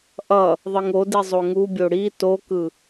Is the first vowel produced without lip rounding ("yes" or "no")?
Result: yes